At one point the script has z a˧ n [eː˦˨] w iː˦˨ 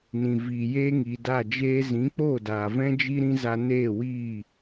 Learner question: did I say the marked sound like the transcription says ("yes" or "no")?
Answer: yes